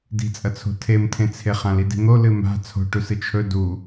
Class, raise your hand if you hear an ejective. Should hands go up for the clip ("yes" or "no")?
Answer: yes